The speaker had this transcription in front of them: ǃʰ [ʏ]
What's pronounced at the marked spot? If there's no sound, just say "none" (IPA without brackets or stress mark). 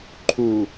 u